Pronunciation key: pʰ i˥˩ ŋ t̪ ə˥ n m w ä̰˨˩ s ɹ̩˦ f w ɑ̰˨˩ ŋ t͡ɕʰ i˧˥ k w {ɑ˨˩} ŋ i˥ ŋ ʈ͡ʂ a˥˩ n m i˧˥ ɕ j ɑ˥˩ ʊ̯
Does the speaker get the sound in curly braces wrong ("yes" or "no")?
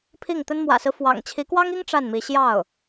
yes